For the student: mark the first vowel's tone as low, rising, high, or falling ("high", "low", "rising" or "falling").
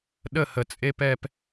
falling